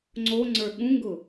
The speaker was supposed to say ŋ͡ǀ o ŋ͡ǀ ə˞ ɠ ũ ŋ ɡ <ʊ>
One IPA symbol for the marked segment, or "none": ʊ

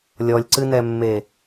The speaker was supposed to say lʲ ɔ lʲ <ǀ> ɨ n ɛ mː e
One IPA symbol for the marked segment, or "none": ǀ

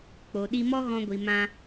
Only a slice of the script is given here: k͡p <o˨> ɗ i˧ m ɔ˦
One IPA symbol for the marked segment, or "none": o˨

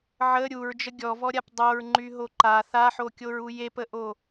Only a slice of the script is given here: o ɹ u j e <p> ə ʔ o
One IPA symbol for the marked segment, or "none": p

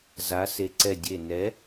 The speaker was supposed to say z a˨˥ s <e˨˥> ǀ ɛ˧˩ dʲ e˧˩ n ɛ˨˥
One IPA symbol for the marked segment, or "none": e˨˥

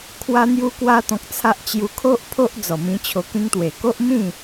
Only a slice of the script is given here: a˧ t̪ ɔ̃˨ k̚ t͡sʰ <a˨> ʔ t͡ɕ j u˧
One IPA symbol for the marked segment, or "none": a˦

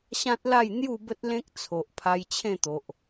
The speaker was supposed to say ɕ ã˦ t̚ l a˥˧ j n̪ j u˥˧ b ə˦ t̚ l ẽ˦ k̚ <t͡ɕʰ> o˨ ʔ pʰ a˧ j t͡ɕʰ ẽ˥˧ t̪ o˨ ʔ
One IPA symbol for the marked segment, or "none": t͡sʰ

